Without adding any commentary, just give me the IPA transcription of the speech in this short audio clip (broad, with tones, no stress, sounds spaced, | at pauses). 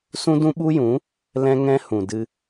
s ũ˦ d ũ˦ ɓ u˦ j ũ˨˦ | l ɛ̃˦ ŋ ɛ̃˦ h ũ˨ d ɨ˧